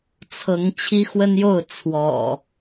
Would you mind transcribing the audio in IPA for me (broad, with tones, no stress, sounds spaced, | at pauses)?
t͡sʰ ɤ˨˦ ŋ t͡ɕʰ i˦ x w ə˦ n j o˥˨ ʊ̯ t͡sʰ w ɔ̰˨˩